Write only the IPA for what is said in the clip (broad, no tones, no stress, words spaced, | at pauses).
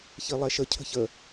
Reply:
çilˠɛʃə cʰə̤çə